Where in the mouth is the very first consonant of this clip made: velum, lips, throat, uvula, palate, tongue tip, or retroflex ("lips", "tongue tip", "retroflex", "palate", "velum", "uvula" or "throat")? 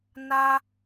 tongue tip